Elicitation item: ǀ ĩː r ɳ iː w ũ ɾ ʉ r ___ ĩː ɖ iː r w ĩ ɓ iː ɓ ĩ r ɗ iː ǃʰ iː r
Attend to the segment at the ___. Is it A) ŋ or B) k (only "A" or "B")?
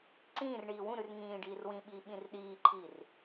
A